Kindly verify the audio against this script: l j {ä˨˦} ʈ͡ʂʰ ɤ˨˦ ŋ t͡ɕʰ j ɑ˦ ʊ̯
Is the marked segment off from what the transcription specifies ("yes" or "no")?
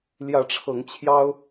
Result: no